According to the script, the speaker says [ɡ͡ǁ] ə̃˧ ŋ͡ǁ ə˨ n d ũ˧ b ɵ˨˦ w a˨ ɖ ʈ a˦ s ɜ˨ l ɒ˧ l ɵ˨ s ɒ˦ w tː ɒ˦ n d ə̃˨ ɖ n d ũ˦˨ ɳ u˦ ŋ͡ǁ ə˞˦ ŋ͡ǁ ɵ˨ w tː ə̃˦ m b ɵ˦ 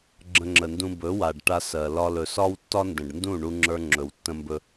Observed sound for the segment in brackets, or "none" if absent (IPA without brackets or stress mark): ɡ͡ǁ